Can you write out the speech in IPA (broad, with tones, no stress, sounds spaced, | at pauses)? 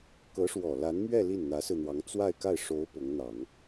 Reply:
k ɤ˧˥ ʂ w ɔ˨˩ l a˧˥ n m ɥ ɛ˥˧ l i˥˩ n n̪ ä˧˥ s ɹ̩˧ n̪ w ɑ˧˥ ŋ t͡s w a˥˧ ɪ̯ k a˥˩ ɪ̯ ʂ o˧˥ ʊ̯ p ʊ˧˥ ŋ n̪ ɑ˨˩˦ ŋ